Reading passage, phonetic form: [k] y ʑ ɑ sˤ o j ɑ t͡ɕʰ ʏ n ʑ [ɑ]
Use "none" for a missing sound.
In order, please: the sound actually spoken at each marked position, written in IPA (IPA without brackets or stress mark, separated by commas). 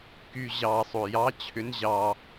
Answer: k, ɑ